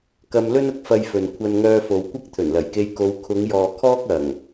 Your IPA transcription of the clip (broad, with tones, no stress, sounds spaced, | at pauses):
k ɐ˧ m l ɵ˥ n ʊ˥ k̚ f ɐ˧ j f ɵ˨ n kʷʰ ɐ˧ n ŋ œː˧ f o˨ w kʷ ɐ˥ k̚ t̪ʰ ɵ˨˩ n l ɐ˨˩ j k e˧ j k o˨˧ w kʰ ʊ˨˧ ŋ j ɔː˨ kʰ ɔː˥ k̚ ɐ˨˩ ŋ